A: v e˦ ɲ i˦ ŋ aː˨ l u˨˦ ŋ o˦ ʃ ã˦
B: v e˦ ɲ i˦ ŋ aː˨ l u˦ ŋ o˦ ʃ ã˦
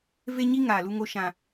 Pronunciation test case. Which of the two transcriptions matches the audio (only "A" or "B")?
B